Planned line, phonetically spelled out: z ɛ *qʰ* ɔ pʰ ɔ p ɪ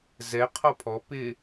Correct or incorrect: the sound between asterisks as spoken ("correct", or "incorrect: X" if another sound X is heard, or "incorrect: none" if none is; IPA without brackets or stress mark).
correct